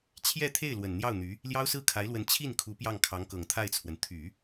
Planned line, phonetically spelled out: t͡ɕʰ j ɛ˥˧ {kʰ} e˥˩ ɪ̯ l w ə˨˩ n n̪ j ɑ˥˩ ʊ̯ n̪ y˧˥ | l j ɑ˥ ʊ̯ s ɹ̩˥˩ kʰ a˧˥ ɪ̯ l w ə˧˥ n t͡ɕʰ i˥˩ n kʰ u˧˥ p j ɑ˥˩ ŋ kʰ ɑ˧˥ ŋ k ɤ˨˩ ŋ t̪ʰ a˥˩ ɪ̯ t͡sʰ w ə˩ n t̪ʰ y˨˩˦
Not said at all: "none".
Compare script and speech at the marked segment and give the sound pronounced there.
t̪ʰ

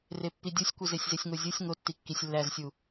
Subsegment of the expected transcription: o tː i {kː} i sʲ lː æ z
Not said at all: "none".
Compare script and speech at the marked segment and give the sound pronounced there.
kː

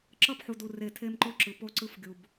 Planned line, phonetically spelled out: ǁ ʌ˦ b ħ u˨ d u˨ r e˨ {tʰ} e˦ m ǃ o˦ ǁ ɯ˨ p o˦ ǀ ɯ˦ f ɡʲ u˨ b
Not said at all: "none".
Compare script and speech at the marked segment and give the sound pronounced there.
tʰ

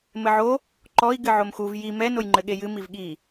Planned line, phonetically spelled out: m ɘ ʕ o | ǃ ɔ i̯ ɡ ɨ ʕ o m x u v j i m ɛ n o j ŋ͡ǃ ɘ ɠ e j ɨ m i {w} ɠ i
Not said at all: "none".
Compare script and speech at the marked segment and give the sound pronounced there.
v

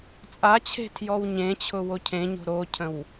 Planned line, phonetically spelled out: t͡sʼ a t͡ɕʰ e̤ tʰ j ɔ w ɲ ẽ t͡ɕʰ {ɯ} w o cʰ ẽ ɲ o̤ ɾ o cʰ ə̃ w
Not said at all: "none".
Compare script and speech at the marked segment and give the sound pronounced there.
ʊ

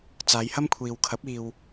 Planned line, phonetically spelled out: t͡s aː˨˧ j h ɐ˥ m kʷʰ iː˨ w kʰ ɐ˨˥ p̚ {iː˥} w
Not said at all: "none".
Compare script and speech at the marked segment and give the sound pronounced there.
iː˨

